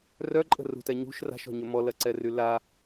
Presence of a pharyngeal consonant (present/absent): absent